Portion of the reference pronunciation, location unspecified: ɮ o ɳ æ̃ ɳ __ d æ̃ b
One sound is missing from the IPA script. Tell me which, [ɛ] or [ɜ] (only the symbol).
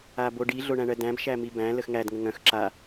ɜ